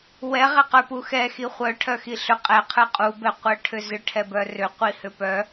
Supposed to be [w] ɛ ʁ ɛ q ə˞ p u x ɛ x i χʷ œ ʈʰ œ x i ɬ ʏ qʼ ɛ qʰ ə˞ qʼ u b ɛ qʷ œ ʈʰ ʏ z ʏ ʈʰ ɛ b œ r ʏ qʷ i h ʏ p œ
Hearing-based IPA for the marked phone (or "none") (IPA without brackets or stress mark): w